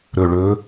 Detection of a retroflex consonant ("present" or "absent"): present